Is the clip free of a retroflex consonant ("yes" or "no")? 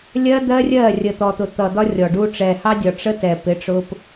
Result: no